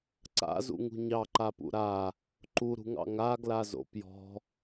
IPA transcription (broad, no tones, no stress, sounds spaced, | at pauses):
ǀ a̰ z ṵ ŋ ṳ ɲ ɑ ǃ a p ṵ ɾ a | ǃ u ɾ ṳ ŋ ɑ̰ ŋ a ɡ l a z o̰ p j ɔ̤